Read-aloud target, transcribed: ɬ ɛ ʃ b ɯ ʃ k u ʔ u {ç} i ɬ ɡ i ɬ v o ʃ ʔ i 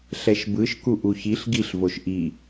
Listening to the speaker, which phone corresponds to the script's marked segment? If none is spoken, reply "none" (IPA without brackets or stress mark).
ç